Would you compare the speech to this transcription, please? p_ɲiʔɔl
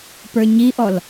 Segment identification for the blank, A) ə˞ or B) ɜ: A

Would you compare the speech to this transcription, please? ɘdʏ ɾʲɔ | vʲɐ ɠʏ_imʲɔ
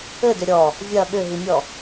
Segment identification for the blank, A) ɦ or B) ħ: A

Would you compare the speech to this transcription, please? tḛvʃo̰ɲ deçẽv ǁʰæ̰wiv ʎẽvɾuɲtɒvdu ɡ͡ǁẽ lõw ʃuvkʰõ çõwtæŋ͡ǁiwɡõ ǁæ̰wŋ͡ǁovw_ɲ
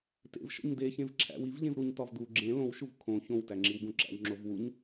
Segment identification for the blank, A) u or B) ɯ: A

